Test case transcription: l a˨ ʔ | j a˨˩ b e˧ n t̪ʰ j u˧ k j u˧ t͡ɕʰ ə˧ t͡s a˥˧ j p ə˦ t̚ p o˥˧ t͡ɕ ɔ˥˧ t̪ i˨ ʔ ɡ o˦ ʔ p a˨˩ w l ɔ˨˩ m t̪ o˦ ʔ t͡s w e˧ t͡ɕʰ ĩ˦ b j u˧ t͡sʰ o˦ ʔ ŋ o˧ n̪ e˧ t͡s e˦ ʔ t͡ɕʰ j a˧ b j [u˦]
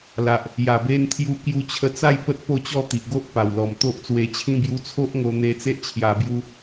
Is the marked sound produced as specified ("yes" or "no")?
yes